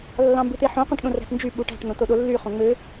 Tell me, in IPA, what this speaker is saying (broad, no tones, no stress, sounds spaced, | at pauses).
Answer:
lː ɑ̃ m b ɯ t̪ e ħ õ q õ ʈ ɗ õ r æ̤ t n d͡ʒ y ɓ u ʈ æ̤ ʈ n̪ õ t o ɗ o lː y χ õ ŋ͡m ø